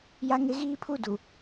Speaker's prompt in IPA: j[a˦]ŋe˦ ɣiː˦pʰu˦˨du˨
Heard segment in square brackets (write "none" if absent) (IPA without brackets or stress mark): a˦